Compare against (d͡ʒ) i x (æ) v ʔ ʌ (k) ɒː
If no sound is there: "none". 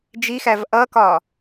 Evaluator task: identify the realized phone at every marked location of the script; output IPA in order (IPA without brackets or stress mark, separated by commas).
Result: d͡ʒ, æ, k